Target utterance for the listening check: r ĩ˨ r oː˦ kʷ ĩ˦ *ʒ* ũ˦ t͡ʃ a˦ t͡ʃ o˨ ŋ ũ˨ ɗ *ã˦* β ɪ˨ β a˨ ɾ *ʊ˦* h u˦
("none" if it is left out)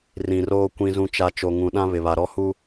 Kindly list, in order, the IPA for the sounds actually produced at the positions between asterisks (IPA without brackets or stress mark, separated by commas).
z, ã˦, ɔ˦